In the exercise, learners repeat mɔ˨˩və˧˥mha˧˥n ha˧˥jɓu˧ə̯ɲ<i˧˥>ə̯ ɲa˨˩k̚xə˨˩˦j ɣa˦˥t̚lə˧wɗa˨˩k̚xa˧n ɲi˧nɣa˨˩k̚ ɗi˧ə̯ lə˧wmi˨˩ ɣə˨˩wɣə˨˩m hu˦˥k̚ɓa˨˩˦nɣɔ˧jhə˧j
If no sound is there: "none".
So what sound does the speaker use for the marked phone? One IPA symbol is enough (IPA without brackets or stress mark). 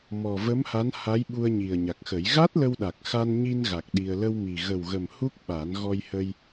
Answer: i˨˩